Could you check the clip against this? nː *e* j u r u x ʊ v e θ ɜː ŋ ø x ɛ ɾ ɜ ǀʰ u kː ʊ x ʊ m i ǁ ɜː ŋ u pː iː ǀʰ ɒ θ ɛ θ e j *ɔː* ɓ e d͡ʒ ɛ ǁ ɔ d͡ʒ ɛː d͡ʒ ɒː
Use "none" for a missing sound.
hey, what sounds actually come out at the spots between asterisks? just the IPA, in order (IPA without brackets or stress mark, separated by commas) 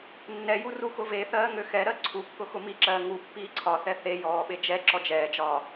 ɛ, ɔː